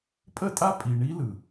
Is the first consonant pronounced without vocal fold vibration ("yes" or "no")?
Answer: yes